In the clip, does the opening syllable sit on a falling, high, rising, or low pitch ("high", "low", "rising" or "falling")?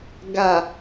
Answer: low